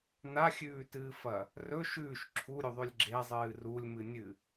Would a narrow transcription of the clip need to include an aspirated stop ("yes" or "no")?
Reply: yes